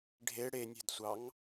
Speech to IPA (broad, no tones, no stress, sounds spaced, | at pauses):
ɖʱ e ɽ e nʲ ɛ̤ d sʷ ɑ ŋ